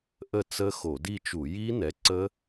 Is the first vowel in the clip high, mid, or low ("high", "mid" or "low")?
mid